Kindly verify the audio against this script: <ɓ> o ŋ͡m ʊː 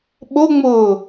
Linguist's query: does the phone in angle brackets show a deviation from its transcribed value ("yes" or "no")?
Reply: no